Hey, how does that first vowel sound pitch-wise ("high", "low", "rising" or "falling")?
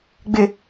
low